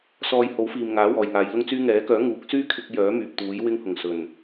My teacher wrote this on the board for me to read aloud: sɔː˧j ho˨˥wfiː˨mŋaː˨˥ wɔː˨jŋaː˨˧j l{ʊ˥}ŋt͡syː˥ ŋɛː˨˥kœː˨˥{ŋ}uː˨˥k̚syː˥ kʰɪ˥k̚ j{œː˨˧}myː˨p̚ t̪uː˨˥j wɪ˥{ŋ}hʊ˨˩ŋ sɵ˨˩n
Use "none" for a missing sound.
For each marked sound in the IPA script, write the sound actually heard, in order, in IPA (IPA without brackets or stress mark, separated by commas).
ʊ˥, ŋ, œː˨˥, ŋ